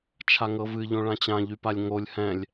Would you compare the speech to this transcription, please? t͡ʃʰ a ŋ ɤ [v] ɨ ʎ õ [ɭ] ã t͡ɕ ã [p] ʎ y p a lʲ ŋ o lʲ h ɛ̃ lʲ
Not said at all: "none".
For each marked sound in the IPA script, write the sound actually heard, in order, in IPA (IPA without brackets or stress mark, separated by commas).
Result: v, ɭ, none